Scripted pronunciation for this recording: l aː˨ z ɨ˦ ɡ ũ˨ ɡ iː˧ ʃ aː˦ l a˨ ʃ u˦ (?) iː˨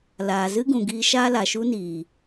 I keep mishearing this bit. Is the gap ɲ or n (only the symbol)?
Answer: n